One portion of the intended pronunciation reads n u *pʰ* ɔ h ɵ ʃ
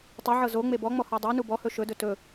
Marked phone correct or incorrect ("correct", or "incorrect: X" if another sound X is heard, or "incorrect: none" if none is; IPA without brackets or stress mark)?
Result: incorrect: b